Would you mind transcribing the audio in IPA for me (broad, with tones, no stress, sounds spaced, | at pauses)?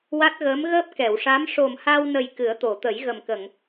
w a˦˥ t̚ ɣ əː˧˥ m ɣ əː˦˥ p̚ k ɛ˨˩˨ w ʂ a˧˥ m ʂ o˨˩ m h a˧ w n ə˨˩ j k ɨ˨˩˦ ə̯ t̪ o˨˩˨ t̪ ə˨˩˦ j ɣ ə˨˩ m k ə˨˩˨ ŋ